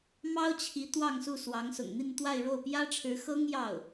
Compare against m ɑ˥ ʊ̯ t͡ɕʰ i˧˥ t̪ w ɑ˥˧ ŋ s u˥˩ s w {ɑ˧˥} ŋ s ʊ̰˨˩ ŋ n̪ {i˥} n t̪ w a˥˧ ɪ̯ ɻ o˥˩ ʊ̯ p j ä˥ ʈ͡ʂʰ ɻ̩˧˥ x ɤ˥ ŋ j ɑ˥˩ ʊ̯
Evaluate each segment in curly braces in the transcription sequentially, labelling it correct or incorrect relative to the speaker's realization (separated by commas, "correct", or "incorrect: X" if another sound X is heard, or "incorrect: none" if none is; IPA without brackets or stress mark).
correct, incorrect: i˥˧